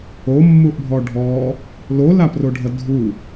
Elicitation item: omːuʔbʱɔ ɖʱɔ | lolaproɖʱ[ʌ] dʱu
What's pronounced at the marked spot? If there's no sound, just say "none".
ʌ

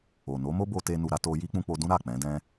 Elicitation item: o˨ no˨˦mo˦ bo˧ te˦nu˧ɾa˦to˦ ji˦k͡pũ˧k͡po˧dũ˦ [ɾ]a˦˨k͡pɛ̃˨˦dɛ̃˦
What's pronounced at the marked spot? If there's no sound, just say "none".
ɾ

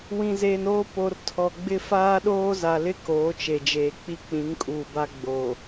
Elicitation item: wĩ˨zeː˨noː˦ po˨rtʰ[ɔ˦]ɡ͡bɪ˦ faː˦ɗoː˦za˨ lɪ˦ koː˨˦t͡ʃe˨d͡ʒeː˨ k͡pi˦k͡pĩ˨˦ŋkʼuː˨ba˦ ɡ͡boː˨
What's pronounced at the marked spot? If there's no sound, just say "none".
ɔ˨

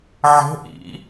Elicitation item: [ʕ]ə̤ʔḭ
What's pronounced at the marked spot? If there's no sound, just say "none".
ʕ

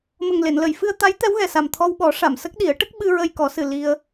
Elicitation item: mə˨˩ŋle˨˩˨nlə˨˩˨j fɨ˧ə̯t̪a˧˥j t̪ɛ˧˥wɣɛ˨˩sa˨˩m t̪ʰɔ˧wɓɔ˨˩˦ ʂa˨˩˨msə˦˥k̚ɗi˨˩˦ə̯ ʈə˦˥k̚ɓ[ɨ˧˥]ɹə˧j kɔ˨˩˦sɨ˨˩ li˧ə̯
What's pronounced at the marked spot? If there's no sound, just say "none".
ɨ˧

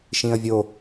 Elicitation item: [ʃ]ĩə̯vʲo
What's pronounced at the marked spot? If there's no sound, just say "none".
ʃ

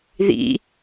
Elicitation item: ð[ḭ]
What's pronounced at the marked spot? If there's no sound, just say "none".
ḭ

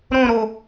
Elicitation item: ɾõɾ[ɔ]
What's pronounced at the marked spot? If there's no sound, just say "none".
o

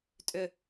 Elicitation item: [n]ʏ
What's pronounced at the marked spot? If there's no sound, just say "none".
tʼ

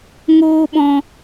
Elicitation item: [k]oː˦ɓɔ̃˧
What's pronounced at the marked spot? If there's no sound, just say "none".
ŋ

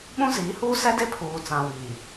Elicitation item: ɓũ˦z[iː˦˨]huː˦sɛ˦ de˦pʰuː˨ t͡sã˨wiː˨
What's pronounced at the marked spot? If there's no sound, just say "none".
iː˨˦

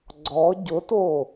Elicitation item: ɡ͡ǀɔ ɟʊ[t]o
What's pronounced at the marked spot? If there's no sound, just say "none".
t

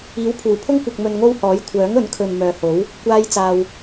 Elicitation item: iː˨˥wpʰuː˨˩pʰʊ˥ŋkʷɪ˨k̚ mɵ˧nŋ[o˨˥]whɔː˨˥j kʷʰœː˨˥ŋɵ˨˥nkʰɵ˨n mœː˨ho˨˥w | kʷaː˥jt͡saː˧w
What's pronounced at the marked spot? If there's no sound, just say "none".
o˥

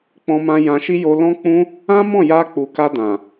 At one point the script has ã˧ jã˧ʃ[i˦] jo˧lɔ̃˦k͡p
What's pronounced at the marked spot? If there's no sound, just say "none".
i˦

